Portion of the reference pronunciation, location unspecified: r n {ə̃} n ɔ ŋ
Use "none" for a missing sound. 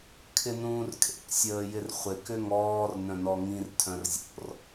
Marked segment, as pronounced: œ̃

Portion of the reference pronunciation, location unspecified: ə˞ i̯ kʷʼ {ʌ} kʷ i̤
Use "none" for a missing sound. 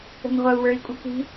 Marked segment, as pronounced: ʌ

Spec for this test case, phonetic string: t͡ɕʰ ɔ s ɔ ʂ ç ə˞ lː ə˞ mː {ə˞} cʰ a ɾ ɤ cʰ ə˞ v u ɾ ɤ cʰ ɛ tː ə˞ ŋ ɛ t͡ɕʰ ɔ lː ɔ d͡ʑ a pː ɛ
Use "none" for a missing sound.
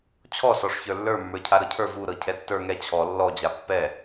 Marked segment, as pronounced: ə˞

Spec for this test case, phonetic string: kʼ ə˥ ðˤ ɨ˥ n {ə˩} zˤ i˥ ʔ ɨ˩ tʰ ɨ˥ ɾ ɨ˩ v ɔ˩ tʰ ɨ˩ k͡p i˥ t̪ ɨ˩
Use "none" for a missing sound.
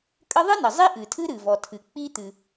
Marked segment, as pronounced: ə˩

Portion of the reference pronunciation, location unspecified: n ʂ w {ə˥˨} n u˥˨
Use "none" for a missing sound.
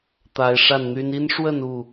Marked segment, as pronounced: ə˥˨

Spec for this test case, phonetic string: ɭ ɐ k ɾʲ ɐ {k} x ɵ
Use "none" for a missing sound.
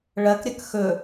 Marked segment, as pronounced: k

